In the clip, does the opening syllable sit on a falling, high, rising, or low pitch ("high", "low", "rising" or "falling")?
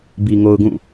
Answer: low